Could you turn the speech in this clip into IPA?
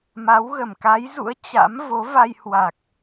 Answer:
m a˨˦ w ɣ ə˧˩ m k a˨˦ j z ṵ˧˥ ə̯ t͡ɕ a̰˧˥ m v o˨˦ v a˧ j h w a˨˩ k̚

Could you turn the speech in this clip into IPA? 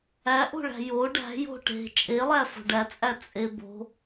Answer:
æ ʔ o̤ ɭ æ̤ j o ɖ æ̤ j o̤ ʈ e̤ t͡ʃʼ e lˠ æ f o̤ ɖ æ t͡sʼ æ t͡sʼ e b o̤

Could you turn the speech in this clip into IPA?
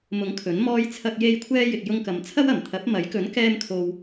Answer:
m ʊ˨˥ ŋ kʰ ɵ˨˥ n m ɔː˥ j t͡sʰ ɐ˧ k̚ j e˧ j kʷʰ ɛː˧ j ɪ˨ k̚ j ʊ˧ ŋ k ɐ˨ m t͡sʰ ɐ˥ w ɐ˨˩ m t̪ʰ ɐ˨˥ p̚ m ɐ˨˥ j k ɵ˨˥ n k ɛː˧ m kʰ o˨ w

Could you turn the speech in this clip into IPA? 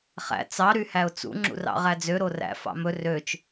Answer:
χ æ̰ t͡s ɑ ɾ y h æ ʊ̯ t͡s ṵ ŋ͡ǁ ṵ r ɑ̰ ʁ æ d͡z ø ɾ o r æ̰ f ɑ̰ m ɵ r ø t͡ʃ

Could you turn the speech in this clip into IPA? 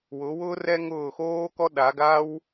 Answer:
w ʊ˨˦ w ʊː˥ r ɛ˥ ŋ ʊː˦˨ x oː˥ k ɔ˥ ɗ a˨˦ ɡ a˥ w

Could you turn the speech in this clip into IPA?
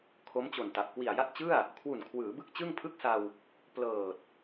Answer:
kʰ o˦˥ m t͡ɕ o˨˩ n t a˨˩ p̚ k w i˨˩ a̯ j a˥˩ t̚ t͡ɕ ɯ˥˩ a̯ | kʰ w u˨˩ n kʰ w ɯː˩˦ b ɯ˥˩ k̚ t͡ɕ ɯ˥˩ ŋ pʰ ɯ˥˩ k̚ s a˧ w | p l ɤː˨˩ t̚

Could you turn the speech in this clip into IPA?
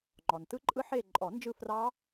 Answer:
ŋ͡ǃ ɔ˩ n t ɯ˦˥ ǃʼ ɯ˦˥ ħ eː˦˨ ǃʼ ɔ˨˩˦ n d͡ʒ ɯ˦˨ f r ɑ˦˥

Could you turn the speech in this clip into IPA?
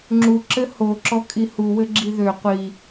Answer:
ŋ͡ǁ u ǁ ɘ h o ǁ ɔ kʼ i h u w ɘ ɡ͡ǁ i ð ø qʷ i

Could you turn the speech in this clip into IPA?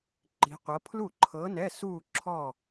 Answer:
ǃ i̤˧˥ qʷ ɤ˧˥ pʰ l u˥˩ ǃʰ ɤ˧˥ n ɛ˧˥˧ s u˥˧ ǁʰ ɔ˥˧

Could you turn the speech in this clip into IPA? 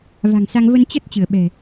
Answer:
v a̤˨˩ ŋ s a˧ ŋ v ə˧ n t͡ɕ ə˦˥ t̚ t͡ɕ ɨ˧˩ ə̯ ɓ ɛ̤˨˩

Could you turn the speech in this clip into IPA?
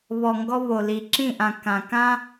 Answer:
β ɔ˨ ŋ ɡ ɔ˦ β o˨ l i˨ ǁ ĩ˦˨ ʔ ã˨ k ã˨ k ã˦

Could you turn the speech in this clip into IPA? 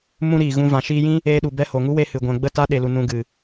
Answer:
m ũ˦ ɾ iː˨ ɣ ũ˧ v ã˨ ʃ iː˧ j ĩ˦ | eː˧ ɗ u˨ b ɛ˧ h o˨ ŋ u˦ w e˧ h ɨ˨ ɡʷ ɛ̃˨ ɡ͡b ə˦˨ t a˦ ɗ e˨ l u˨ n ũ˨ ɡ ɨ˨

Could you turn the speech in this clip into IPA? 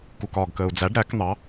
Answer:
k u k ɒː ɡ k əː u̯ d͡z æ ɖ ɾ æ k n̪ ɑ

